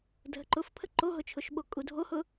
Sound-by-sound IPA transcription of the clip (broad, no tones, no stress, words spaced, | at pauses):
dʱəǃʊfpʰə ǃoɦʊt͡ʃʰʊʃɓo kʼudʱohʊ